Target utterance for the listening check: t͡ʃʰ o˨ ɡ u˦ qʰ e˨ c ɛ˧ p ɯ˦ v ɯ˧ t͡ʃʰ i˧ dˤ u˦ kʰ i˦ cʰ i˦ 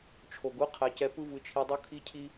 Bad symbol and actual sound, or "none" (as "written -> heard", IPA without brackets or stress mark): e˨ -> ɛ˨